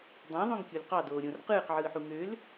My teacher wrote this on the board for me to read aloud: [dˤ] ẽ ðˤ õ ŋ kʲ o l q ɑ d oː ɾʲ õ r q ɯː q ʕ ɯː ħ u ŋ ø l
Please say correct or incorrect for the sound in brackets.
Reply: correct